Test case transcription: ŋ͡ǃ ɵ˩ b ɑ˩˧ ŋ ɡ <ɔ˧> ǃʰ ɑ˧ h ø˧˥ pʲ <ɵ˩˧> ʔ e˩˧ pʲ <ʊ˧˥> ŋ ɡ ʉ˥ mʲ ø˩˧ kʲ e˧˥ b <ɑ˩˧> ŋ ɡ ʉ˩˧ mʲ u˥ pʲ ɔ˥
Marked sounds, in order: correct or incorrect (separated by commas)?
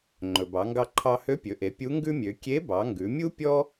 incorrect, correct, incorrect, correct